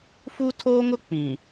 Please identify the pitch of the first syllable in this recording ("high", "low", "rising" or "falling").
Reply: high